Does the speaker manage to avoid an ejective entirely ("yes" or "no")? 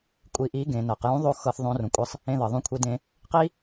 no